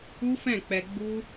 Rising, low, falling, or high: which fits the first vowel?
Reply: high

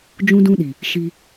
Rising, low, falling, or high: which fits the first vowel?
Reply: high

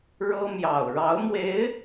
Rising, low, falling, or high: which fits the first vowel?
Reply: high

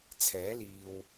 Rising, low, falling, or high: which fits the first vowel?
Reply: rising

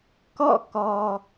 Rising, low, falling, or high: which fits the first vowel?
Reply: falling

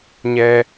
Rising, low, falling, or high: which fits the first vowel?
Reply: low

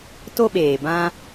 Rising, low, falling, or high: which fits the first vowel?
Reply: high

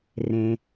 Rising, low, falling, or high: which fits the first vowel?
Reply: low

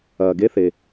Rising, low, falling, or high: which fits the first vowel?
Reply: low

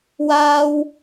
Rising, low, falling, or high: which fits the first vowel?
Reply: high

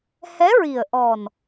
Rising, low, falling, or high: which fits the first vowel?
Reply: rising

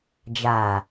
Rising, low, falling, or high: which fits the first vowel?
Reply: low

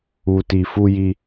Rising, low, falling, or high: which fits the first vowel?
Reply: low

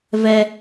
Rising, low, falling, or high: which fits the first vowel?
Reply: high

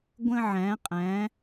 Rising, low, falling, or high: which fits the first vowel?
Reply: high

